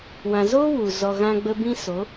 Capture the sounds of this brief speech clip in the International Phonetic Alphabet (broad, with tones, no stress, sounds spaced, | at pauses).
w ã˨ z oː˦ w u˨ z ɔ˨ ɣ ã˧ ɡ͡b ə˧ b ĩ˦ s o˨˦